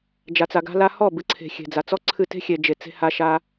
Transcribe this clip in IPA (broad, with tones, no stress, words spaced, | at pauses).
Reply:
d͡ʒa˨t͡sa˨ɡa̤˧ la˧hɔ˦˨ bɨ˨˦ǀʰe̤˨ xʲe̤˨d͡za˨t͡sɔ˦ǀʰɨ˦˨ te̤˦xʲe˨ d͡ʒe˨t͡se̤˧ha˧ ʃa˧